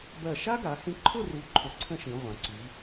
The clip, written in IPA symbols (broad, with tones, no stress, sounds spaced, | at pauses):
b ɜ˧˩ ʃ a˥ ɡ a˩˧ h ĩ˧ ǃʰ ʊ˥˧ r u˧ ǃʰ ʊ˧˩ ǀʰ ə̃˥ ʃ ĩ˩˧ ʁʷ ã˩˧ ǀ i˩˧